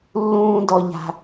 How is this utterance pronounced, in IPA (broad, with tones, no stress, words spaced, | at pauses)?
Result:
lːũː˥ dɔ˥ʎa̤˥